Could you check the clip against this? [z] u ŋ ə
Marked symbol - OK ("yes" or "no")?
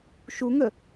no